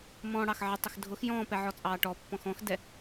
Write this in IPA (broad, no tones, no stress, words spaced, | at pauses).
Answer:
mɔ̃ːɽɑxʕə tˤəxdʱʊx jɔ̃ːpɛ ʕɔt͡sʼɑːʈɔ pːɔ̃xɔ̃xdɛ